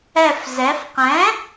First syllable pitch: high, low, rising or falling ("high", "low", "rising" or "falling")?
low